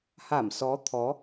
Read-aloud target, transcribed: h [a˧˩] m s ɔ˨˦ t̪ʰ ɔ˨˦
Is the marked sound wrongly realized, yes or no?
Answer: no